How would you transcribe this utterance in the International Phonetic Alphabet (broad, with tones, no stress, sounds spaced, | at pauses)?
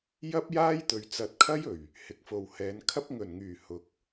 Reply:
j ɐ˥ p̚ j aː˥ j t̪ ɵ˨ ɥ t͡s ɐ˨ t̚ kʰ ɐ˥ j ɵ˨˩ ɥ | h ɪ˨˥ k̚ f o˨ w h ɛː˨˧ n kʰ ɐ˥ p̚ ŋ ɵ˨˩ n ŋ yː˨˩ h ʊ˨˥ k̚